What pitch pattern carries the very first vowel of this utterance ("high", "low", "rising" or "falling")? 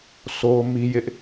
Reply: high